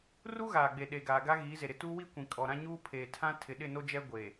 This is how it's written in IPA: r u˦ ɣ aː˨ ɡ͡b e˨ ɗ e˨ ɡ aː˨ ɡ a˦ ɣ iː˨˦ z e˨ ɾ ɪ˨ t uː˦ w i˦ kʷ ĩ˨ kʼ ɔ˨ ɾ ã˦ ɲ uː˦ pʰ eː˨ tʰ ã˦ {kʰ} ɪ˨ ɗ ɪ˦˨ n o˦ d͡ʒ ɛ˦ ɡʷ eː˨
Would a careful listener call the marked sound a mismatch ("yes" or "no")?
yes